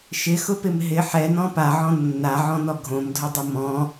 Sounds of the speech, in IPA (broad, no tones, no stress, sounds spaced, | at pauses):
ʃ ɪ x ʊ p ɪ m ɦ ɪ ħ ɛ n ɔ̃ p a ʕ ɔ̃ nː a ʕ ɔ̃ n ɔ ɡʱ õ m dʱ ʊ dˤ ʊ m ɔ̃